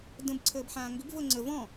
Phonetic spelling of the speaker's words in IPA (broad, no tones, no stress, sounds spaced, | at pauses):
d ə̃ b ǀʰ əː b ħ ãː ŋ ɡ ʏ b v ɤ ŋ͡ǀ ə v ɔ̃